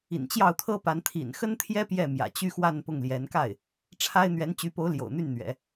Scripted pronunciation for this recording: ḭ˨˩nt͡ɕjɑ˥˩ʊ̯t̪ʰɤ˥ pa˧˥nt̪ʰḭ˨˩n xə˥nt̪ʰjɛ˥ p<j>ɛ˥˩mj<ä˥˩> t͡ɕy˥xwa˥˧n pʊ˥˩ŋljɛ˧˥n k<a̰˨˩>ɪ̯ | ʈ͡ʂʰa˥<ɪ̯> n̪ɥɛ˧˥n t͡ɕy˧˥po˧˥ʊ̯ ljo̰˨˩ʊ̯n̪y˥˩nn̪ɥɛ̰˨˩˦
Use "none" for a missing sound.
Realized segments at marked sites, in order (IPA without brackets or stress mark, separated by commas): j, ä̰˨˩, a˥˩, ɪ̯